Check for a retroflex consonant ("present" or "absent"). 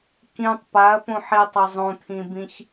absent